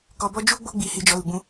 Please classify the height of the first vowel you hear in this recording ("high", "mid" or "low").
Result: mid